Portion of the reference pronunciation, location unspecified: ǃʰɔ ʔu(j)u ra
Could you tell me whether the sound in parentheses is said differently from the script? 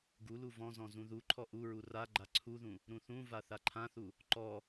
yes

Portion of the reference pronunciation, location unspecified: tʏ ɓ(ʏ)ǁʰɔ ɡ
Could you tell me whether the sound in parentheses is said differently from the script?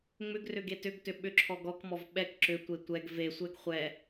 no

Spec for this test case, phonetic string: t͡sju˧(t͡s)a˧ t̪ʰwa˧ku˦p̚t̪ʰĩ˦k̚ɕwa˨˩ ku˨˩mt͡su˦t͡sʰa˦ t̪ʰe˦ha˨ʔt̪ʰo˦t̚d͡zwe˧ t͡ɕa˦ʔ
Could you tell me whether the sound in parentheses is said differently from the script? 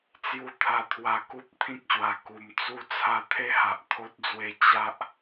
yes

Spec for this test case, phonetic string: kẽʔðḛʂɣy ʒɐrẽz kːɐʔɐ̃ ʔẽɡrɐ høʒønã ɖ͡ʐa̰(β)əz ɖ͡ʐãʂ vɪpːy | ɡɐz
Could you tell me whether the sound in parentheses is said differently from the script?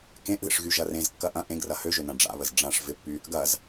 no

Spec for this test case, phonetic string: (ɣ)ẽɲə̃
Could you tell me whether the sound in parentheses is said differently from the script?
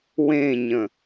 yes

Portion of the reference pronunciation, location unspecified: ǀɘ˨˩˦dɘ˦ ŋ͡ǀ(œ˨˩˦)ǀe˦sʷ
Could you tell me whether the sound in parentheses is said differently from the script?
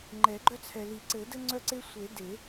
yes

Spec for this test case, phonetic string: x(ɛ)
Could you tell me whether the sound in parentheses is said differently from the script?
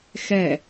no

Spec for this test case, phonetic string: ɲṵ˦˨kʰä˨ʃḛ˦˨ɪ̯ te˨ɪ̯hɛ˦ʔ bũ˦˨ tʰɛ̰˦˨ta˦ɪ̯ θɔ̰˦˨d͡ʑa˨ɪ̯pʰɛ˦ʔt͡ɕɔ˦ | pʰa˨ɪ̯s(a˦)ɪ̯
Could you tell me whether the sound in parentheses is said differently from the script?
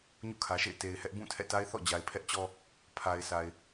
yes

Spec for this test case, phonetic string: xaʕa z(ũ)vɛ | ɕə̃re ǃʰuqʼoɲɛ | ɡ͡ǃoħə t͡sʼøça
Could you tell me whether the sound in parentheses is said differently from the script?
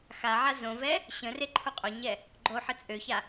yes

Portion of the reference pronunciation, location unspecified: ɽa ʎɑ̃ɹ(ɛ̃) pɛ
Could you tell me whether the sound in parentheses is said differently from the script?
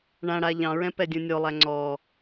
no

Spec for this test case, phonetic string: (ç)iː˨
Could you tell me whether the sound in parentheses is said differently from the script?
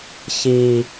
no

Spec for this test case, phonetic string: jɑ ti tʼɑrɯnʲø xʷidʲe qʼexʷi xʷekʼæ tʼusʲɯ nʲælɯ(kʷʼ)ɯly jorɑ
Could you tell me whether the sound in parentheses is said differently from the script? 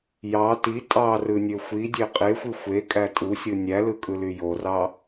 yes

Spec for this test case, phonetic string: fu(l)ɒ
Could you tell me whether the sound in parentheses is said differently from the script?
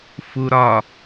yes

